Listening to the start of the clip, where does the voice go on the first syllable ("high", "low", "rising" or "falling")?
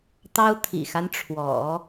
high